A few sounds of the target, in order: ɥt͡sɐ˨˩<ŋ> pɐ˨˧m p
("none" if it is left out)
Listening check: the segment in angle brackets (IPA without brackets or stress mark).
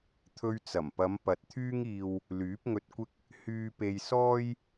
m